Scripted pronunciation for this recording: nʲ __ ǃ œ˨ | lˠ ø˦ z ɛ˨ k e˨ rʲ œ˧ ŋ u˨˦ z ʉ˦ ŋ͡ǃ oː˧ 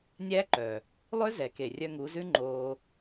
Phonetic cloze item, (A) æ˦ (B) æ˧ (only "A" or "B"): A